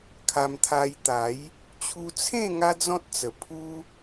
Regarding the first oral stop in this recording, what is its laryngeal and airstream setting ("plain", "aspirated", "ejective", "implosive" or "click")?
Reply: aspirated